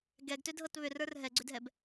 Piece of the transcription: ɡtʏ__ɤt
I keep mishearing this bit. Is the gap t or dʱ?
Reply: dʱ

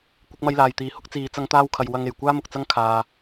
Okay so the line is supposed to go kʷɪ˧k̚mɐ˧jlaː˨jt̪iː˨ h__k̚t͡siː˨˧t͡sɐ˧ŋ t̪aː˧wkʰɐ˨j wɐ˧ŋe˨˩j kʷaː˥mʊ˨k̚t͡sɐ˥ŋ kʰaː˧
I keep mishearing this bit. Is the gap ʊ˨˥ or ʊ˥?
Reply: ʊ˥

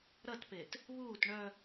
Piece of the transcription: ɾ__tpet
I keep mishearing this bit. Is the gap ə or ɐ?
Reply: ɐ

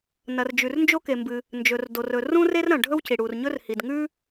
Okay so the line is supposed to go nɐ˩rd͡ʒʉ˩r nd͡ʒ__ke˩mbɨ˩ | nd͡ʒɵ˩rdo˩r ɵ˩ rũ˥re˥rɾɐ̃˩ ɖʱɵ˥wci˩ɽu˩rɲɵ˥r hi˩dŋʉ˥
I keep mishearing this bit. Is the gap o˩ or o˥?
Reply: o˥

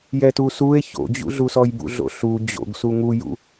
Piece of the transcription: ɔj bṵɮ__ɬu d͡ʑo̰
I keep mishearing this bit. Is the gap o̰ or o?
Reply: o̰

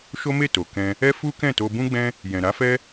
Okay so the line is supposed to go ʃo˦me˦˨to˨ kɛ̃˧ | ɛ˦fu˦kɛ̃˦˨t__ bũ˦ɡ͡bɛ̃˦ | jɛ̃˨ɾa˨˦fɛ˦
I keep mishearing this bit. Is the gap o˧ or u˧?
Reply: o˧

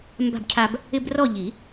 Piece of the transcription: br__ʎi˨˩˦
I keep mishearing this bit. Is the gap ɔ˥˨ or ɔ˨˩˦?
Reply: ɔ˥˨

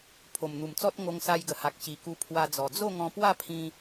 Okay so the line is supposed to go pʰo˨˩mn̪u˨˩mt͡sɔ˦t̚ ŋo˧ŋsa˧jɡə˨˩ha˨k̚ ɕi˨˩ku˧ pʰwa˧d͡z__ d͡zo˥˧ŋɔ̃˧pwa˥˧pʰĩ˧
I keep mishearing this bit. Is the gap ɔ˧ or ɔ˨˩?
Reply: ɔ˨˩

